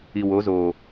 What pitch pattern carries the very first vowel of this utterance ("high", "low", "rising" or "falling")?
low